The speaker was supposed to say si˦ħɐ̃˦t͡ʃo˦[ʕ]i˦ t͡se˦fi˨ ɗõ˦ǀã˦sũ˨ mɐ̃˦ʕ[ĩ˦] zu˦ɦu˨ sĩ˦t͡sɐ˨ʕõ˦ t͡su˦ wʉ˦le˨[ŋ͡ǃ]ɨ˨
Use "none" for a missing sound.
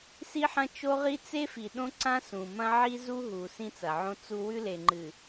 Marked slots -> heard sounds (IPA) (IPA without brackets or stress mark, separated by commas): ʁ, i˦, ŋ͡ǃ